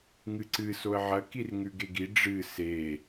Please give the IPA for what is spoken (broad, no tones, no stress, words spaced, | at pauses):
ŋɨǀɨ soə̯ʕɐ kirŋʉɡeɡi ɖ͡ʐɨ se